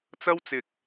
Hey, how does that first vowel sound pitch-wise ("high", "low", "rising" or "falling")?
high